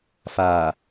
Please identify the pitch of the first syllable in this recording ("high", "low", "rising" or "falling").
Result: low